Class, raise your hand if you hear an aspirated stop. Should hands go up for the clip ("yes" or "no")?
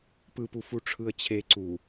yes